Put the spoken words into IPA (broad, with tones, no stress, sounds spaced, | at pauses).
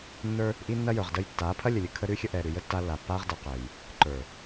nː ə˞˦ | ʔ i˦ nː ɐ˦ j ə˞˨ ʁ d ə˦ j tː aː˨˦ pʰ ɐ˦ lʲ ə˨ lʲ ə˨ kʰ ə˦ ɾ ʉ˦ xʲ ə˦ ʔ ɛː˨ ɾ ʉ˨ j ə˦ tː a˦ lː a˨ pː aː˦ ʁ d ɤ˨ q ɛː˨ j | ǃ ə˞˨